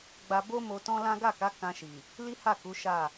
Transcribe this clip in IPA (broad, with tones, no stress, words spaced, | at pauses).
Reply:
ɡ͡ba˧bo˦mo˧ tɔ̃˦ lã˦ ɡa˦˨ka˨˦ kã˧ʃi˨ | li˦ha˦˨ ku˨˦ʃa˦˨